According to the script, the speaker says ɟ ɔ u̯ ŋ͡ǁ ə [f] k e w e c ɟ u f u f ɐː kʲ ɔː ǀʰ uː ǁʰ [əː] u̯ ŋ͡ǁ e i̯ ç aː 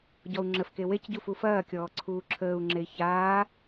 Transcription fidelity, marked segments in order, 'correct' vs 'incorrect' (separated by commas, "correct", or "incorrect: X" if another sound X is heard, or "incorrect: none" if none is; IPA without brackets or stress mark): correct, correct